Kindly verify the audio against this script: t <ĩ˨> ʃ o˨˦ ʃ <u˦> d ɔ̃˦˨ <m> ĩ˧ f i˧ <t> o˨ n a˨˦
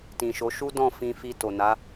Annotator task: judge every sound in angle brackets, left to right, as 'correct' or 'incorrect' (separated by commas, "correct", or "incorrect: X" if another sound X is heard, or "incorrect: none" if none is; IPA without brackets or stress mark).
correct, correct, incorrect: f, correct